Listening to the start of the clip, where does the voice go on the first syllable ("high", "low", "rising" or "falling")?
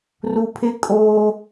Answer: low